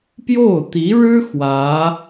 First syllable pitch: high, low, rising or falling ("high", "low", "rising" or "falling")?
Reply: falling